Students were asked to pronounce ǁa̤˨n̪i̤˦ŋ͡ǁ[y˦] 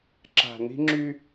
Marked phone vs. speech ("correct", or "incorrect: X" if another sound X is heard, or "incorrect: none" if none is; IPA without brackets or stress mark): correct